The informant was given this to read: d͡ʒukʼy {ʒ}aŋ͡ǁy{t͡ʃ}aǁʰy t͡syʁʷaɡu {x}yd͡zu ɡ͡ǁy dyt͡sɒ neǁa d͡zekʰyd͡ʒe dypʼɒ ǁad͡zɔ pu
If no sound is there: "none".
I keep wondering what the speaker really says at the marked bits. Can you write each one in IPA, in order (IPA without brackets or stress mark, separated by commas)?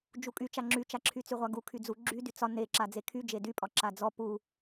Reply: t͡ʃ, t͡ʃ, kʰ